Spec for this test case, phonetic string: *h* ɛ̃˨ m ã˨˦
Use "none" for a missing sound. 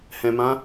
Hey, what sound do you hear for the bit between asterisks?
h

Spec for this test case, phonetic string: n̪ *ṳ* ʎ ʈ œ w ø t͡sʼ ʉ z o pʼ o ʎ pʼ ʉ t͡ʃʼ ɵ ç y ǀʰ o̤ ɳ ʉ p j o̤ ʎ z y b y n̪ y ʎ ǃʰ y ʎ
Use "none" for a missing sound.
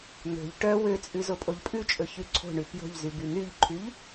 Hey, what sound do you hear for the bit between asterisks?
o̤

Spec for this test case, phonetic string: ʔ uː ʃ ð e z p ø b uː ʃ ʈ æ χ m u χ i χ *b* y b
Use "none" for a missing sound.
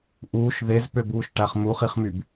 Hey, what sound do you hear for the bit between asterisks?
m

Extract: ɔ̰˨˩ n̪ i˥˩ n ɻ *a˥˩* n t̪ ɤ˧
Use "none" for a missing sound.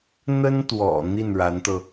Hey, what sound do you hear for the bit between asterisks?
a˧˥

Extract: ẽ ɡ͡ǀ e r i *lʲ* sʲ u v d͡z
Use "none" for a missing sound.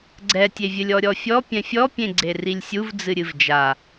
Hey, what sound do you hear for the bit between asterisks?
lʲ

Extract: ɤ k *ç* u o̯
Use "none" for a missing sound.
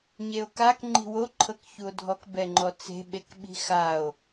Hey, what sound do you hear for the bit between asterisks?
ç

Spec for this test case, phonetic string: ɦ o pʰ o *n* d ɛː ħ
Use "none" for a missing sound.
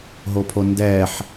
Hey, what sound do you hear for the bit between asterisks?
n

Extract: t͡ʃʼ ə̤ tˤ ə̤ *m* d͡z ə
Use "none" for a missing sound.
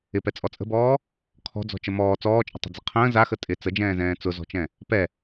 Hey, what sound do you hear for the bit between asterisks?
none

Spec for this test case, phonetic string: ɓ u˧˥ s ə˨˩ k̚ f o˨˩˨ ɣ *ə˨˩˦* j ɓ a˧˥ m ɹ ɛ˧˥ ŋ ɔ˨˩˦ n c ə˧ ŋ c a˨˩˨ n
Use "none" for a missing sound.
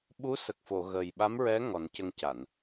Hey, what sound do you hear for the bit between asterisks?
ə˨˩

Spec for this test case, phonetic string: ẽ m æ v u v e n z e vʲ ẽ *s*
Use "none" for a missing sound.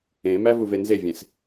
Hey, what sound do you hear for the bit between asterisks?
s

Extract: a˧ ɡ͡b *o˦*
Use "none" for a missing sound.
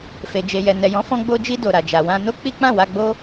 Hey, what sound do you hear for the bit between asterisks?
o˦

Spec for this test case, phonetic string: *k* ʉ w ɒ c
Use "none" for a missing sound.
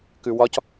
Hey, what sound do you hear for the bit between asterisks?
k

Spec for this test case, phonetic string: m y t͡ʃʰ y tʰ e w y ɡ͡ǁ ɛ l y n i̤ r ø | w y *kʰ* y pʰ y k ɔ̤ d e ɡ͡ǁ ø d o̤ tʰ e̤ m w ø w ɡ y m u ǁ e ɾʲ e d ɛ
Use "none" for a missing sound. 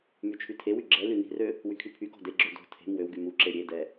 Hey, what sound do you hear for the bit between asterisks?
kʰ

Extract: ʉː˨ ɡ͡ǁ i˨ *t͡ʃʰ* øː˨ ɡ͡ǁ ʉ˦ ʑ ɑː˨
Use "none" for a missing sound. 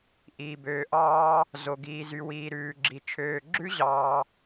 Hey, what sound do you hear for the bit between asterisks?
t͡ʃʰ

